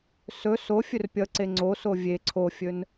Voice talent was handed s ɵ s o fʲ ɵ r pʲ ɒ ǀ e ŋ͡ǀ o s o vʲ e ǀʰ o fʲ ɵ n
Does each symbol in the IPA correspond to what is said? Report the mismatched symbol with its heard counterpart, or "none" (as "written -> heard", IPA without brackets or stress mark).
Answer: ɒ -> ʌ